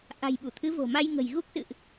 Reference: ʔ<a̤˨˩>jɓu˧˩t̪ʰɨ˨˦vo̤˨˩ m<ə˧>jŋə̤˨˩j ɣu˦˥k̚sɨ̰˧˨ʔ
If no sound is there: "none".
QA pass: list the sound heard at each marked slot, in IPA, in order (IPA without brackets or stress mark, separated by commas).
a̤˨˩, a˧